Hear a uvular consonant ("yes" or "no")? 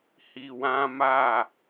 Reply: no